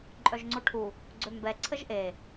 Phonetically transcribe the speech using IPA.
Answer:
ǃʼ œ ʒ ŋ͡ǀ o ʈʰ u | ɡ͡ǀ ø m b ɛ ǀʰ ə ʒ ʔ e

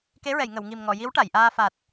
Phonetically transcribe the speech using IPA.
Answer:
k e˧˥ ɹ ɛ˨˩˨ j ŋ ə˨˩˨ w ŋ i˨˩ m ŋ ɔ˨˩˨ j i˧˥ w ʈ a˨˩˨ j ʔ aː˧ f a˨˩ t̚

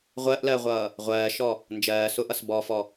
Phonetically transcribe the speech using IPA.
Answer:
ʁʷ ɜ ʔ l ɜ ʁʷ ʌː | ʁʷ ɜː ʃ ɔ | n d͡ʒ ɜː s ʊ ʔ ʌ s b ɔ f ɔ

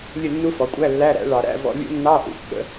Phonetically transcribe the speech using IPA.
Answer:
lʲ ə˥˨ nː u˦˥ f ɔ˩˥ kʷʼ æ˧˥˧ lː æ˧˥˧ ɾ æ̰˩˥ ɭ ɑ˨ ɾ æ̰˧˥˧ v ɔ̰˧˥˧ lʲ ṵ˦˥ nː ɑ˧˥˧ ʔ ṵ˩˥ kː ə̰˦˥

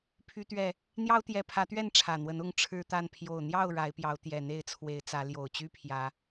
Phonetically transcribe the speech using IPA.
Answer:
pʰ y˨˦ t̪ ɥ ɛ˨˩ | n̪ j ɑ˦ ʊ̯ t̪ j ɛ˨˦ pʰ ä˨˦ t̪ ɥ ɛ˥˨ n ʈ͡ʂʰ ä˨˩ n̪ w ə˨˦ n ʊ˥˨ ŋ ʈ͡ʂʰ ɻ̩˦ t̪ a˥˨ n pʰ j o˨˩ ʊ̯ n̪ j ɑ˥˨ ʊ̯ ɻ a˨˦ ɪ̯ p j ɑ˨˦ ʊ̯ t̪ j ɛ˨˩ n̪ e˥˨ ɪ̯ t͡sʰ w e˨˦ ɪ̯ t͡s ä˨˦ l j o˨˩ ʊ̯ t͡ɕ y˦ pʰ j ä˨˦

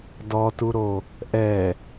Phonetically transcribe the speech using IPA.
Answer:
d ɔ t u ɾ o | ʔ ɛ

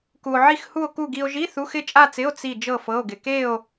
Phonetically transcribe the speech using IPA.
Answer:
k u˧ o̯ ʕ i˥˧ x h u˥˧ o̯ k u˥˧ ɡ i˧ o̯ ʒ i˧˥˧ θ u˧˥˧ x ɪ˥˧ t͡ʃʼ a˥˧ t͡s ɪ˧˥˧ o̯ t͡s i˥˧ d͡ʒ ɤ˥˧ f ɤ˧˥˧ o̯ ɡ ɪ˧ k e˥˧ o̯

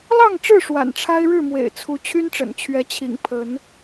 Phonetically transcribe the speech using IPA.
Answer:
l ɑ˥˨ ŋ ʈ͡ʂ ɻ̩˥˨ ʂ w a̰˨˩ n ʈ͡ʂʰ a˦ ɪ̯ ɻ ɻ̩˥˨ m w ḛ˨˩ ɪ̯ t͡sʰ u˨˦ t͡ɕʰ y˦ n ʈ͡ʂ ə̰˨˩ n t͡ɕʰ ɥ ɛ˨˦ t͡ɕʰ ḭ˨˩ ŋ pʰ ə˨˦ n

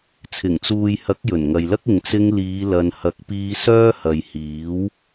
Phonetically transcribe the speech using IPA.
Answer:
t͡sʰ ɪ˨˩ ŋ t͡s uː˨ j h ɐ˨˥ k̚ j ɵ˨˩ n ŋ ɐ˨ j l ɐ˥ k̚ ɪ˨ ŋ t͡s ɪ˧ ŋ l iː˨˧ l ɐ˨ n h ɐ˨˥ k̚ p iː˧ s œː˥ h ɐ˨ j h iː˨˥ w

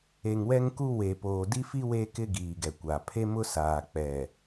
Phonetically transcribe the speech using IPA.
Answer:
e˨ ŋ w ɛ˦ ŋ k u˦ w e˨ p oː˨ d i˦ f i˦ w e˦ k ɪ˦ ɡ iː˨ ɡ ɛ˨ kʷ aː˨ pʰ e˦ m ʊ˦ s aː˨ k͡p ɛ˨

